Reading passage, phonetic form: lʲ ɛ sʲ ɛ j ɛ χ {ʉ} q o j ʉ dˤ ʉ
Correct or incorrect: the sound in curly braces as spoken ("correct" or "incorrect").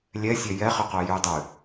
incorrect